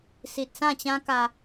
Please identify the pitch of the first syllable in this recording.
low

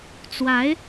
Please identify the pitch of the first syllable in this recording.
rising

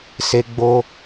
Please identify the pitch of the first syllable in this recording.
high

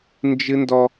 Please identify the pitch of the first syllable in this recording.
high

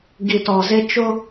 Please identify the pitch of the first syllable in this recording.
low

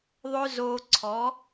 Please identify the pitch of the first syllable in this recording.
high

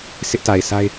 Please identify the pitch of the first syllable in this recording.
high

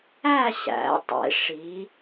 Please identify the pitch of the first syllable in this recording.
falling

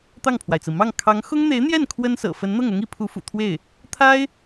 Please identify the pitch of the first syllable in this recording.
falling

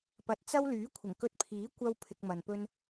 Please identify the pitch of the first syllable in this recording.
low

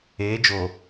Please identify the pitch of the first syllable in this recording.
rising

